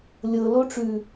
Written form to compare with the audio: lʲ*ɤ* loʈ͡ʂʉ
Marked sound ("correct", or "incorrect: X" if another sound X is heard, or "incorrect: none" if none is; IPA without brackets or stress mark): correct